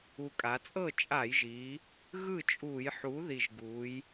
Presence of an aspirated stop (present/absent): absent